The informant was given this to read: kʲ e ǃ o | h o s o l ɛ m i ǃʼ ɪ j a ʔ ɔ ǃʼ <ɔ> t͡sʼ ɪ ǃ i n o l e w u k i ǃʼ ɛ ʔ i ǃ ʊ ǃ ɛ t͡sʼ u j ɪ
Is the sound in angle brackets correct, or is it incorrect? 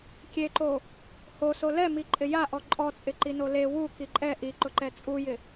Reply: correct